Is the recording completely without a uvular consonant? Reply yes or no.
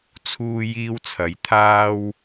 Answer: yes